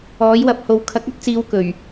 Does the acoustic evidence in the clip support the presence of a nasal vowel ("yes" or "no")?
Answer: no